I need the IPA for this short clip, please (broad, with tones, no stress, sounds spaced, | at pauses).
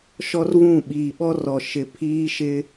ʃ ɔ˦ r v ũ˦˨ ɓ iː˨ ɓ ɔ˦ r ɔ˨ ʃ ɪ˨ pʰ iː˦ ʃ ɪ˦